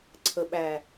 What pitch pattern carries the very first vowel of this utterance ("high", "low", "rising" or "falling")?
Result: low